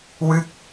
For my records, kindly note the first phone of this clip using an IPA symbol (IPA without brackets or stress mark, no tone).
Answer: w